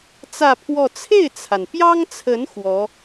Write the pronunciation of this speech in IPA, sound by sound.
t͡s ä˥˧ pʰ w ɔ˥˧ t͡sʰ e˥˩ ɪ̯ t͡sʰ a˩ n p j ɑ˥ ŋ t͡sʰ ə˧˥ n x w ɔ˧˥

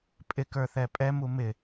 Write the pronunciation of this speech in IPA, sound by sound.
pʼ ɪ k ə˞ θ ɛ pʼ ɛ m u m ɪ

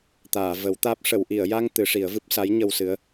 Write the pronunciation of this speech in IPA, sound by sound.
t̪ aː˨˩˨ v ə˨˩˦ w t̪ aː˦˥ p̚ ʂ ə˨˩˨ w ʔ i˨˩˨ ə̯ j a˧ ŋ t̪ ɨ˨˩˦ ʂ i˨˩˦ ə̯ v ɨ˦˥ p̚ s a˧˥ j ɲ ə˧ w s ɨ˧˥ ə̯

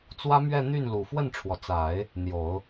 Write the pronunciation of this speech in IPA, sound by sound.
t͡s w ä˥ m ɥ ɛ˥˧ n̪ y˥˩ n l u˨˩ f w ə˥˩ n ʈ͡ʂʰ w ɔ˩ t͡s a˨˩˦ ɪ̯ | n̪ j o˨˩˦ ʊ̯

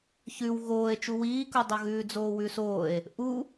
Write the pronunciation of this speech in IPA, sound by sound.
ç ʉ w ɣ oː e̯ t͡ʃ u w iː k u dˤ o ɣ ʉː d͡z oː w ʉ s oː e̯ | ʔ u

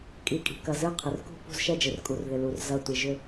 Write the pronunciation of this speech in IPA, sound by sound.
kʼ i˩ kʼ i̤˩ k ɐ˩ z ɨ˦˨ qʰ ɪ˩ r k ṳ˦˨ p ṳ˦˨ z ʃ ɛ˦˨ d͡ʒ ɪ˩ r kʼ u˩ r ð ɪ˩ l u˩ r z ɐ˦˨ tʷ i˩ ʒ ʏ˦˨

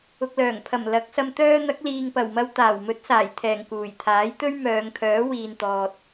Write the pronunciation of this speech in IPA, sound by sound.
ʊ˨ k̚ l œː˨˩ ŋ pʰ ɐ˨˩ m l ɐ˨˥ k̚ s ɐ˧ m t̪ œː˥ n̪ ɐ˨˥ k̚ l iː˨ ŋ p ɐ˨˩ w m ɐ˧ w t̪ aː˨˩ w m ɵ˨˥ t̚ s aː˨˩ j t̪ʰ ɛː˨˩ ŋ k uː˨˩ j t̪ʰ aː˨˥ j t̪ ɵ˥ ɥ m œː˨˧ ŋ kʰ œː˨˥ w iː˨ n t̪ ɔː˨ t̚

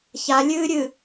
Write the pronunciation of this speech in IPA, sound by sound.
ç a lʲ ɨː ɾʲ ɨ

